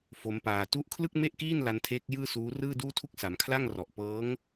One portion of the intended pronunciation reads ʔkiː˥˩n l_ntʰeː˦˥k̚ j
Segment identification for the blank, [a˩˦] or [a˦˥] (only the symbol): a˦˥